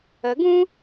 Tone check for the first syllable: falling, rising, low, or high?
rising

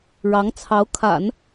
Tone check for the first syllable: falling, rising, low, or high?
rising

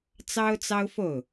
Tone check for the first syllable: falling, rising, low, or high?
high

